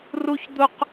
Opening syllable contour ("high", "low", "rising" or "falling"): high